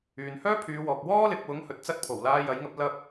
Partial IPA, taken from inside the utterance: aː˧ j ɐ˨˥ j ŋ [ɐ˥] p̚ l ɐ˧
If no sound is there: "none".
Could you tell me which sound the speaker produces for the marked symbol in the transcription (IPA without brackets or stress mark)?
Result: ɐ˨˥